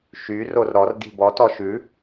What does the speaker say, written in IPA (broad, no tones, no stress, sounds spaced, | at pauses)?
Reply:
ʃ y r o r ɾ ɔ r d i̤ b ɔ t ɔ ʃ ʉ